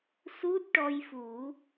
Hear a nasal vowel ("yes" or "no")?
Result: no